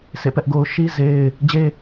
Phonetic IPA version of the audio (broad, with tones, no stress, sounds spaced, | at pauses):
sʰ ḛ˦˨ p ɛ˦ ʔ ɡ o˦ ʊ̯ ʃ i˦ z e˦ ɪ̯ | d͡ʑ e˦